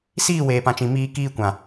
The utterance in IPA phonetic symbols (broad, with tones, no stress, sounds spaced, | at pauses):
s iː˦˨ w eː˨ p ã˨ t͡ʃ ĩ˨ m iː˧ k iː˧ kʷ ã˨